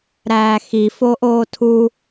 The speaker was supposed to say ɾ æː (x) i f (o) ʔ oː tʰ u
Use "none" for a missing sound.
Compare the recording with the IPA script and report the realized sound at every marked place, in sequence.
x, o

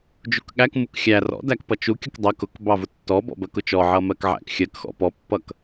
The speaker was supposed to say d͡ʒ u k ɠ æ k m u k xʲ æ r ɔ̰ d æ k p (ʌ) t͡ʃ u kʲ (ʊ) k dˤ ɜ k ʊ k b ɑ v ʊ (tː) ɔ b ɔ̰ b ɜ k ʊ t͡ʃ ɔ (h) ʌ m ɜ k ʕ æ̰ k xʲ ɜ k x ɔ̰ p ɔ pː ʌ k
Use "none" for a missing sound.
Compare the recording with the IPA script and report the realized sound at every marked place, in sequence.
ʌ, ʊ, tː, ʕ

